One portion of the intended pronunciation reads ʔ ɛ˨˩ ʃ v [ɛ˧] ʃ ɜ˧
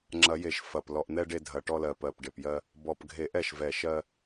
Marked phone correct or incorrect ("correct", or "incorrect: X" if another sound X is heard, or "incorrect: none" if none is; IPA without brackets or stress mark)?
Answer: incorrect: ɛ˨˩